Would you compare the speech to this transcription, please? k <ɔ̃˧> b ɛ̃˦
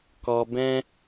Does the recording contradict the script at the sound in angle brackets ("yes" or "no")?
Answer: yes